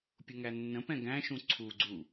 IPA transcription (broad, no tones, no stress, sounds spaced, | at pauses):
pʲ ʊ ŋ æ nː ə̃ p ɛ̃ ɡ æ̃ ʃ ũ ǀʰ u ɡ͡ǀ u